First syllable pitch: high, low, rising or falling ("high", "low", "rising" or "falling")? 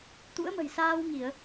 rising